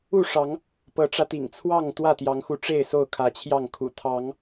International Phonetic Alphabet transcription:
u˥˨ ʂ ɑ˨˦ ŋ | p ɤ˨˦ ʈ͡ʂ ä˧ t̪ ḭ˨˩ ŋ t͡sʰ w ɑ˥˨ ŋ t̪ w ä˥˨ t̪ j ɑ˨˦ ŋ x u˨˦ ʈ͡ʂ e˥˨ ɪ̯ s o˥˨ ʊ̯ kʰ ä˨˦ t͡ɕʰ j ɑ˥˨ ŋ kʰ ṵ˨˩ t̪ʰ ɑ˨˦ ŋ

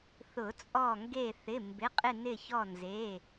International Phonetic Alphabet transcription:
θ ʊ˨˩˦ t͡sʼ ɔ˧˩ ŋ ɡ e˧˩ θ ɪ˩˧˩ m b ɪ˩˧˩ qʼ ɪ˧˩ n ɪ˧˩ ç ɔ˧˩ n z e˩˧˩

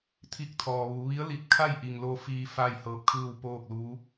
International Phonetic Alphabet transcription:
t̪ʰ i˧˩ k̚ t̪ʰ ɔː˩ ʋ uː˩˧ ʋ i˧˥ ə̯ l i˧˩ t̚ kʰ a˥˨ j ʔ i˩ ŋ l o˧ f iː˧ f aː˥˨ j h ɤː˧ p̚ kʰ ɯː˥˨ w p oː˥˨ k̚ l uː˧˥

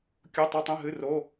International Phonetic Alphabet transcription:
kʲ o˩˧˩ tˤ e˩˧˩ tˤ ẽ˩˧˩ ɦ ɨ˩˧˩ r o˩˧˩

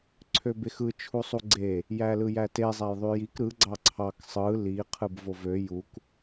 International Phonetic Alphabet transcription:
ǀʰ ø b e x ɯ t͡ʃʰ u sˤ u ɡ͡ǀ e | j æ l ɯ j æ t e zˤ æ j ðˤ y j i k ɾ ɯ ɡ͡ǀ ɑ ǀʰ ɑ k sˤ ɯ l i qʰ ɯ b v o v ø j u k

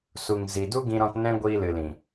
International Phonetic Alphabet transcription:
s u˨ ŋ z i˨ d u˦ ɡ ĩ˦ ɾ ɔ̃˦ t n ɛ̃˦ ɡʷ iː˧ l ɨ˨ l ĩ˨

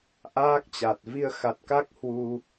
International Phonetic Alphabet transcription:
ʔ aː˦˥ k̚ t͡ɕ a˨˩ t̚ v i˧ ə̯ x a˨˩ t̚ k a˦˥ k̚ h w u˧

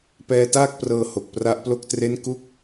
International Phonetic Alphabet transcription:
p ɛː˧ t aː˥˩ k̚ p r ɤː˧ h o˨˩ k̚ p r a˦˥ ʔ p l o˥˩ k̚ t r e˥˩ n k u˥˩ k̚

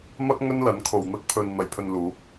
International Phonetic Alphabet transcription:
m ɐ˥ k̚ ŋ ɵ˥ n l ɐ˨˥ n kʰ o˨ w n̪ ɐ˥ k̚ pʰ ɵ˧ n n̪ ɐ˨˩ j pʰ ɵ˨ n l uː˨˥ k̚

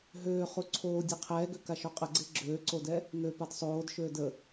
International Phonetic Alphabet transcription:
ɦ øː χ u ǀʰ oː dʲ e qʰ ɛː ɡ ø k a ʃ o qʼ ə ɡ͡ǀ e ɡ͡ǁ øː ǀ o d ɛ | ŋ ø p a d sˤ oː d ʃ øː d ə

